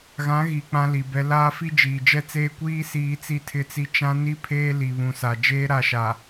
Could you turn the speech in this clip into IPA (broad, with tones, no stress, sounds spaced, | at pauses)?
ɣ ã˨˦ ɣ i˨ k͡p ã˦ l i˨ b ɛ˦ l aː˦ f i˦ d͡ʒ iː˨ d͡ʒ ɛ˦ t͡s eː˦ kʷ iː˦ s iː˦ t͡s i˦ tʰ ɪ˦˨ t͡s i˦ t͡ʃ ã˦ n i˦ pʰ eː˦ l i˨ β ũ˨ s a˨ d͡ʒ eː˦ ɾ a˦˨ ʃ a˨